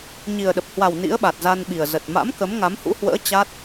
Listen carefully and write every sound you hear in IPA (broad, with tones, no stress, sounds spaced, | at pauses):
ɲ i˨˩ ə̯ ɗ ə˨˩ p̚ h w a˨˩ w n ḭ˧˥ ə̯ ɓ a˨˩ t̚ z a˧ n ɓ i˨˩ ə̯ z ə˨˩ t̚ m a̰˧˥ m k ə˨˦ m ŋ a˨˦ m h ṵ˧˥ h w ə̰ː˧˥ t͡ɕ a˦˥ t̚